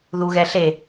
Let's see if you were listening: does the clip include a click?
no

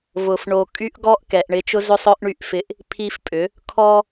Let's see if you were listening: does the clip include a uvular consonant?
no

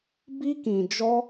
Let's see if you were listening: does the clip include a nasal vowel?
yes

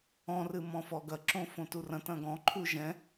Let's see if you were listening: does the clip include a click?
yes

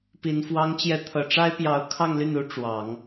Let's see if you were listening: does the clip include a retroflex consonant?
yes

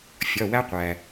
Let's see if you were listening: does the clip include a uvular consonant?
yes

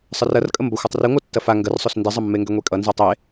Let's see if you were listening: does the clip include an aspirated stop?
no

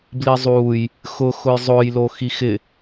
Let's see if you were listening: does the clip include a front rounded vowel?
no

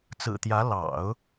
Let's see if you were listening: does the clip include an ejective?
no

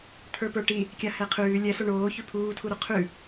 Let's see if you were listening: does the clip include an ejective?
no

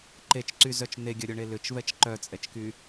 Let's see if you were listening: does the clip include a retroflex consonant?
yes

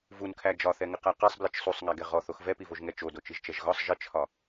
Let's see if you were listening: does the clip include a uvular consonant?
yes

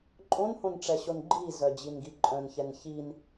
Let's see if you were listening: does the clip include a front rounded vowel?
yes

